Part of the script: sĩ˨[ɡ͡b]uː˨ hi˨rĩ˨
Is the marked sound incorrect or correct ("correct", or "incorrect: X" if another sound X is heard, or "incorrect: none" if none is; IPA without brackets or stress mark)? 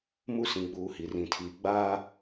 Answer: correct